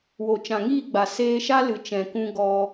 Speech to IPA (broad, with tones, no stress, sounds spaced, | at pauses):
w o˨ t͡ʃ ã˨ ŋ iː˦˨ ɡ͡b a˨ s eː˧ ʃ a˦ l ɨ˨ t͡ʃ ɛ̃˨ k ũ˧ ɡ ɔ˧